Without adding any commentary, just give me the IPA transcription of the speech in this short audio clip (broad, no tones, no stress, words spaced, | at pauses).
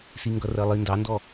siŋɡʌrɜlˠi ndɑndɔ